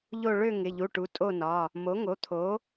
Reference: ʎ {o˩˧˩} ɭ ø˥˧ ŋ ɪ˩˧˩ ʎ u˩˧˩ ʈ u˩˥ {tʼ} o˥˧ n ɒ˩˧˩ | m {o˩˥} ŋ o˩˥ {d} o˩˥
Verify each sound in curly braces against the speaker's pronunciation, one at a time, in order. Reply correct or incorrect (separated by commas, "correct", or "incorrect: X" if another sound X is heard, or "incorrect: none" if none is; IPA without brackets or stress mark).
incorrect: o˥˧, correct, correct, incorrect: t̪ʰ